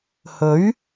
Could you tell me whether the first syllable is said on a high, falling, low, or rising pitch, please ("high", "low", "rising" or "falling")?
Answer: rising